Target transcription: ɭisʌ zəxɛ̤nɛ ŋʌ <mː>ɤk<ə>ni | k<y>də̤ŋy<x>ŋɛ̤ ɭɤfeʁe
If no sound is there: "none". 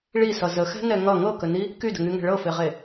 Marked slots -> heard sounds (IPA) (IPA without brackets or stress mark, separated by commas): ŋ, ə, y, none